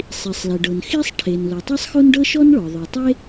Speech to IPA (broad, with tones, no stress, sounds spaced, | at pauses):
sˤ i˩ sˤ l e˩ ɖ ɤ˩ n x i˥ sˤ ʈʰ e˩ n l o˩ tˤ e˥ sˤ x o˥ n ɖ ɤ˥ ʃ ɔ˥ n ɭ ɔ˩ ðˤ ɤ˩ tˤ e˥